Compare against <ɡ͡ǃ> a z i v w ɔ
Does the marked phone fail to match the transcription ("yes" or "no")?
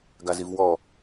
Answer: yes